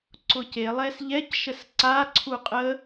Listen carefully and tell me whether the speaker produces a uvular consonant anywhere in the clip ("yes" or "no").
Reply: yes